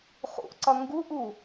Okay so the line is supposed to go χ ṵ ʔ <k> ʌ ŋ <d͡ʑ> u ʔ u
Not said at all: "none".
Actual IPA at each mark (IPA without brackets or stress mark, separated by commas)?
ǀ, ɡ